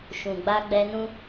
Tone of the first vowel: low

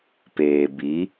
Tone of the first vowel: low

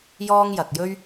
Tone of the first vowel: high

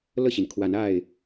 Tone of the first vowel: falling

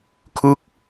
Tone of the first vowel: falling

